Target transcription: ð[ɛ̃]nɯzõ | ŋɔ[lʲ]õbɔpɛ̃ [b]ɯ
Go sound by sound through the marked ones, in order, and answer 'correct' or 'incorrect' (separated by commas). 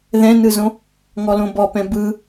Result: correct, incorrect, correct